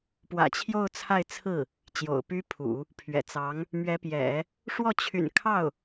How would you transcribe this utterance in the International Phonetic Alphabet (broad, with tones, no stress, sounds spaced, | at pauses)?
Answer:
p w ä̰˨˩ t͡ɕʰ j o˥˧ ʊ̯ t͡sʰ a˥˧ ɪ̯ t͡sʰ ɹ̩˥˩ | t͡ɕ j o̰˨˩ ʊ̯ p y˥ pʰ ṵ˨˩˦ | pʰ ɥ ɛ̰˨˩ t͡s ɑ˧˥ ŋ | m ɥ ɛ˧˥ p j ɛ̰˨˩˦ | ʂ w ɔ˥˩ t͡ɕʰ y̰˨˩ n kʰ ɑ˥˩ ʊ̯